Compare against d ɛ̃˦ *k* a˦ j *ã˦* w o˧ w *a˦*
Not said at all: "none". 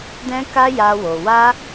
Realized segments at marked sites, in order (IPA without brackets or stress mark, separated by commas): k, a˦, a˦